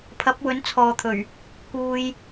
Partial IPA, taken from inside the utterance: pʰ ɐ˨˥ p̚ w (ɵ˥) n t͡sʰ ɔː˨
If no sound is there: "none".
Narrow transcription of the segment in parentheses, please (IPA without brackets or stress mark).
ɵ˨˥